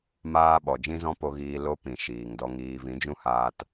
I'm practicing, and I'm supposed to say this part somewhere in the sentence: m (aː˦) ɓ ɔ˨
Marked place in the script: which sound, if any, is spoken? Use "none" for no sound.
aː˦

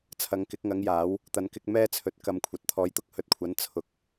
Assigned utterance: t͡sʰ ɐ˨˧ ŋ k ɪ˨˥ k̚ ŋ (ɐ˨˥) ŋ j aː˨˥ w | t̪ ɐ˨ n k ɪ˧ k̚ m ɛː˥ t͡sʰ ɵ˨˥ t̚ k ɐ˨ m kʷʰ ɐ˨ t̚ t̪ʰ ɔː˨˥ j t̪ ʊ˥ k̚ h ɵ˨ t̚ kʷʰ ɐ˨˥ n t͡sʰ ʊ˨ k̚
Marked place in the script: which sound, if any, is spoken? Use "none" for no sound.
ɐ˨˥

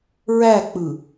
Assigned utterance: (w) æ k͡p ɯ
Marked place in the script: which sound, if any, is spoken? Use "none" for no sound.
ɹ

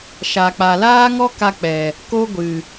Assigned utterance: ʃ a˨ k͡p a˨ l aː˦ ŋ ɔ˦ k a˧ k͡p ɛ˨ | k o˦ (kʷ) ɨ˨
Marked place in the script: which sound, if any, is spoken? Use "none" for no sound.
ɡʷ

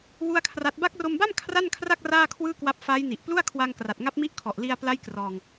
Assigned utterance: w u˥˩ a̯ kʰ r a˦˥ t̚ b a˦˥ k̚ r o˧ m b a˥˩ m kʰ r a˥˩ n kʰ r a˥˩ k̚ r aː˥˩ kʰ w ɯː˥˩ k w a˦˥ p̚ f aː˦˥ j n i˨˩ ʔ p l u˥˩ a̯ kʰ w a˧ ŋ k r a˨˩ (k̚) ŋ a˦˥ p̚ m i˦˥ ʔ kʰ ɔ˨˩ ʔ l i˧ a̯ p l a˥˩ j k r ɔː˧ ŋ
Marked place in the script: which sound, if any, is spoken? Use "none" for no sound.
t̚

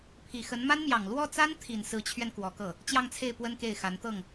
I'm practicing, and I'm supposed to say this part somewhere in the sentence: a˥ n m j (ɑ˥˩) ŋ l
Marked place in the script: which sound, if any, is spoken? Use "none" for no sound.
ɑ˨˩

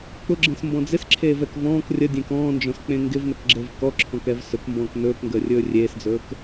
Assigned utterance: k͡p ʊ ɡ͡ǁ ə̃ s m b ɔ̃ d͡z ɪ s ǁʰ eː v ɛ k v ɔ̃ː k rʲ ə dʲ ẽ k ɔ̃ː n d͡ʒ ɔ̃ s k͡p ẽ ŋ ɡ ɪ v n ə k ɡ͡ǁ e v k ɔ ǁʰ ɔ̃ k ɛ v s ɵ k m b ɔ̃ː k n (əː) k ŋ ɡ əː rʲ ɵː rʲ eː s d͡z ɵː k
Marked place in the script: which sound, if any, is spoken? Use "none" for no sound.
ɵː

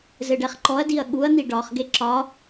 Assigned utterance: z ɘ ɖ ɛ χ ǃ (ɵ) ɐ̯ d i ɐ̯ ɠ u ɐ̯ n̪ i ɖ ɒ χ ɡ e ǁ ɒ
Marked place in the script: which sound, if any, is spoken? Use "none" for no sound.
ɔ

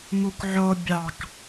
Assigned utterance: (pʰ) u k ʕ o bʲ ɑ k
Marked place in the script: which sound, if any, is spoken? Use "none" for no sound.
m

